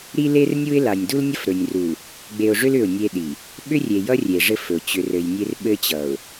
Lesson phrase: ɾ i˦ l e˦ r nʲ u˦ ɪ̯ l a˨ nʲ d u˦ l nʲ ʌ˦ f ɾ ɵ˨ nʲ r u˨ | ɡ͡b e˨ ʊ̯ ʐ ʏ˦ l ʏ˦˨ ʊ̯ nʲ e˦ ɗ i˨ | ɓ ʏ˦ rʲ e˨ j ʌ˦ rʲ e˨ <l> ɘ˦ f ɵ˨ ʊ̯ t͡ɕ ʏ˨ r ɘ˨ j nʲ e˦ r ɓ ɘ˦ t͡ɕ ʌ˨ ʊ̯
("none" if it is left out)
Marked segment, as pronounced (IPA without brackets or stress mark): ʐ